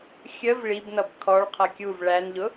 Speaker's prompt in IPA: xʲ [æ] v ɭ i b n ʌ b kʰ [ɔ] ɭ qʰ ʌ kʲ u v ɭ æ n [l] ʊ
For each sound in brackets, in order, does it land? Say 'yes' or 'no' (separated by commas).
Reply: no, yes, no